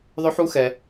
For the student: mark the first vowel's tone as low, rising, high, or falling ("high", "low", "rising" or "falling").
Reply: rising